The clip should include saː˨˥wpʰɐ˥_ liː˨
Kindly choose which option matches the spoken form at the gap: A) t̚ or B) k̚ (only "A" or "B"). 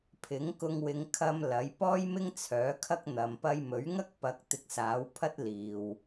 A